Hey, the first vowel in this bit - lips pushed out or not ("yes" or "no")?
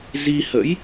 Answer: no